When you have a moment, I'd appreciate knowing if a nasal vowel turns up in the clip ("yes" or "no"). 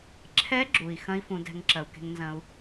yes